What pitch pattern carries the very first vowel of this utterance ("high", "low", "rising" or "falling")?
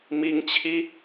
rising